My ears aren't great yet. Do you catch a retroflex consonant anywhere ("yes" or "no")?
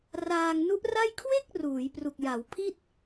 no